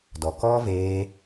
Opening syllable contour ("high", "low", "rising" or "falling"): low